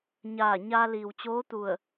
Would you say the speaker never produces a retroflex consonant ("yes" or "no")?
yes